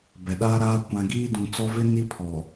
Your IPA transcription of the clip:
b ɛ˨ ɗ aː˦ ɾ aː˦ kʷ ã˨ ɡ iː˦ d ũ˨ t͡s ɔ˦ v ɪ˦ n i˦ pʰ ɔ˨

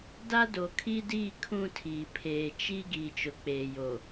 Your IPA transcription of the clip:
d a˦ d o˨ kʰ i˦ d iː˦˨ kʰ ũ˦˨ tʰ iː˨ pʰ eː˨ t͡ʃ i˦ ɡ iː˨ t͡ʃ ʊ˨ k͡p eː˨ j o˨

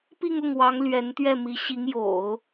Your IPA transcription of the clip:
p i˥˧ ŋ ʊ˥˩ ŋ w ɑ˧˥ ŋ l ɥ ɛ˧˥ n t̪ ɥ ɛ˥˩ m i˧˥ ɕ i˧˥ ŋ j o̰˨˩˦ ʊ̯

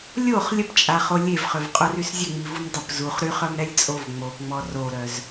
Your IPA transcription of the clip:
lʲ o χ lʲ ə p t͡ʃʼ a χ o lʲ e v χ ø v qʼ o r y s zʲ ə ŋ͡m i v u m dˤ ə p z u χ ɾ y χ œ m ɾ ɛ lʲ t͡sʼ o v ŋ͡m o p ŋ͡m ɔ r o ɾ œ z

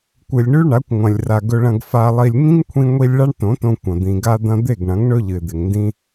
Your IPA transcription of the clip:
kʷ ɨ˨ lʲ ɳ ʉ˦ ɳ a˨˦ kʷ ŋʷ ɐ̃˨ lʲ r a˨ ɡ ɵ˧ ɭ ɐ̃˧ ɡ f a˧ lˠ i˧ lʲ ŋ ĩ˦ ŋ kʷʰ ĩ˧ ŋʷ i˧ lʲ ɭ a˦ ɳ t õ˨˦ t õ˧ kʷ ɐ̃˨ d̪ ĩ˨ ɡ a˧ d̪ ɐ̃˧ d̪ e˦˨ ɡ ɳ ɐ̃˨˦ ŋ ɳ ɵ˦ ʎ ɨ˨ ɪ̯ d̪ e˨ ŋ n d ĩ˦

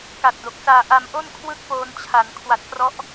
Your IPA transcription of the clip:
k a˨˩ t̚ d o˨˩ k̚ s aː˧ ʔ a˧ m ʔ o˥˩ n kʰ w ɯ˥˩ k̚ p oː˧ n t͡ɕʰ a˩˦ n kʰ w a˨˩ t̚ k r ɔ˦˥ ʔ

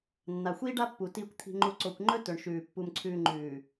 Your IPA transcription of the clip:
nː a˨ xʷ iː˦ ɖ a˦ pː u˨ t iː˨ kʷ t̪ʰ i̤˨ ŋ͡ǃ u˨ ǀ o˨ kʷ ŋ͡ǃ ɵ˦ t ɵ˨ ɳ ʃ ʉː˨ pː u˨ m ǀʰ ʉː˨ ŋ͡ǃ ʉː˨

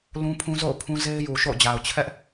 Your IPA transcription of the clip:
l ũ˦ pʰ ũ˦ z o̰˦˨ ʊ̯ pʰ ũ˦ z e˦ ɪ̯ j u˨ ʃ o̰˦˨ ʊ̯ d͡ʑ a˨ ʊ̯ t͡ɕʰ ɛ˦ ʔ

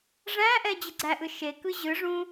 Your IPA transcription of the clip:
ʐ æ̃ ʔ ɛ d͡ʑ ɘ ɡ͡ǀ æ ʔ ɯ ʃ e k ɯ ʑ ɯ ʐ ũ

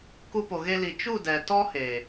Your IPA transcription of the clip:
k u˧ p o˨ ɣ e˧ l i˨ t͡ʃ u˦˨ d ɛ˨ t ɔ˦ h e˨

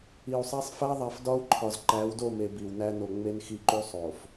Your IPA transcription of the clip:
i˨ u̯ sˤ æ˦ sˤ f æ˦ ðˤ æ˨ f d ɒ˦ u̯ ǃʰ ɒ˨ z ǃ æ˨˦ w d o˦˨ m e˨ b i˨ w n æ˦ n o˨ ŋ͡m e˦ n x i˦˨ ǃ u˦ sˤ o˨ f

